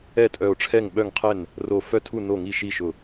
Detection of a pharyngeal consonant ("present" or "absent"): absent